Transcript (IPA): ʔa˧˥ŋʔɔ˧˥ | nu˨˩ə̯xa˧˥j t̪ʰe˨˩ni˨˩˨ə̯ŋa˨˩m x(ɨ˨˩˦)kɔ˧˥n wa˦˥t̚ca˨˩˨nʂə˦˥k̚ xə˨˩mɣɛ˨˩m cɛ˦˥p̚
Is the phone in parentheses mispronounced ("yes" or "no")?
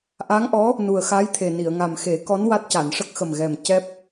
yes